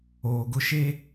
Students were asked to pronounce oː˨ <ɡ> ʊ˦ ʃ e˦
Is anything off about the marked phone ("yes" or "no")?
no